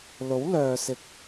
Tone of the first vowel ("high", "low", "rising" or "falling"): rising